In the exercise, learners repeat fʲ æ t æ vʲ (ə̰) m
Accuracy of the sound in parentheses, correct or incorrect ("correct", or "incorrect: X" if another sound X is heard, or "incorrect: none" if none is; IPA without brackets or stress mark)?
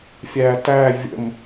correct